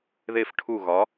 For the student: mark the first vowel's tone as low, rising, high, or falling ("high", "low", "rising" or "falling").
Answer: falling